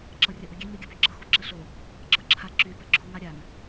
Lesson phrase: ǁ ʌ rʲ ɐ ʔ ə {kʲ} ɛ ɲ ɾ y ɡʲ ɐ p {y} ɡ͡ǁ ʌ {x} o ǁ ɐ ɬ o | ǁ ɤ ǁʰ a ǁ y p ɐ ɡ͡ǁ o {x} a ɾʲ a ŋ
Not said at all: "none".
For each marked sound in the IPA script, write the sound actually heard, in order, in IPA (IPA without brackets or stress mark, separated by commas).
ɡʲ, y, x, ŋ